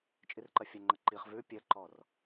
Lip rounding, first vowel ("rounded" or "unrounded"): unrounded